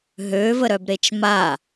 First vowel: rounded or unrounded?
rounded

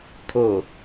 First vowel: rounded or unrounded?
rounded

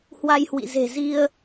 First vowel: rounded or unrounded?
unrounded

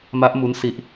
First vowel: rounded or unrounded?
unrounded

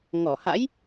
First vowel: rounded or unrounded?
rounded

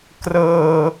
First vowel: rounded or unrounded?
unrounded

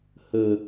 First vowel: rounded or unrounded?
unrounded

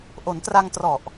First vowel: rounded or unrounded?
rounded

